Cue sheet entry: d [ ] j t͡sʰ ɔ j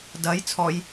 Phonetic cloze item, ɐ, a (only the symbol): ɐ